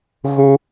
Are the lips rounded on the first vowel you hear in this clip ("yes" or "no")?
yes